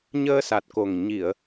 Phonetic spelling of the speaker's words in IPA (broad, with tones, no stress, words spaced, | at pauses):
ɲəː˧sa˨˩t̚ko˨˩ŋ ɲi˨˩˨ə̯